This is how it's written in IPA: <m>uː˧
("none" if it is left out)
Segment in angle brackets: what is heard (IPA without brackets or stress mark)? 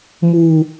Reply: m